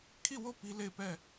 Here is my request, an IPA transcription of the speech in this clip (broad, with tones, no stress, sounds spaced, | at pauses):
kʰ i˦˨ w o˦˨ p i˦ l e˦˨ ɪ̯ p ɛ˦˨